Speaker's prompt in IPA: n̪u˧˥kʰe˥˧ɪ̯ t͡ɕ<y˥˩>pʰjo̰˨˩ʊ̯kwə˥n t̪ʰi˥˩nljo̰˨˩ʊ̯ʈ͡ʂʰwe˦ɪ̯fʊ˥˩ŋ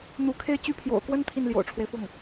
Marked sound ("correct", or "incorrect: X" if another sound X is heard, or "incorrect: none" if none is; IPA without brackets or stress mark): correct